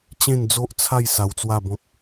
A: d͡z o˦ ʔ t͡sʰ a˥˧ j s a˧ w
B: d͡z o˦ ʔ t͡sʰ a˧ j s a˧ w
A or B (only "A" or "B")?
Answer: A